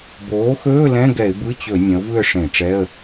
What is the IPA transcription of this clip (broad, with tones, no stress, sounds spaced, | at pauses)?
b oː˩˥ x ɵː˧˥˧ l ɛ̃˧˥˧ ɡ ɛ˧˩˧ ɪ̯ b ɯ˧˥˧ t͡ɕ ɵ˧˩˧ nʲ ɐ̃˩˥ ʊ̯ v ɯ˥˨ ə̯ ʂ ẽ˧˩˧ ʈ͡ʂ ɛ˧˥˧ ə̯